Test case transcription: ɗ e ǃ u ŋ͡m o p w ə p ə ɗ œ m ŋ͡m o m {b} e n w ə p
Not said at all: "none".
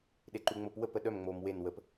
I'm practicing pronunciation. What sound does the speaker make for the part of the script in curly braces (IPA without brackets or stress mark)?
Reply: w